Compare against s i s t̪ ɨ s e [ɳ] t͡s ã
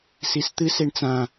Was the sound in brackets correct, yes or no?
yes